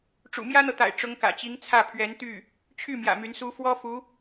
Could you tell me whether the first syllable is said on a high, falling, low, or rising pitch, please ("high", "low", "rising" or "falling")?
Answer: low